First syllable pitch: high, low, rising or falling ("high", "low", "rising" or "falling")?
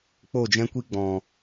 falling